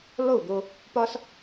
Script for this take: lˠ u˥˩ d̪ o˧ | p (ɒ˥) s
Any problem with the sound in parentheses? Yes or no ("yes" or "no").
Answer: no